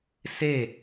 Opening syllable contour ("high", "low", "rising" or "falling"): falling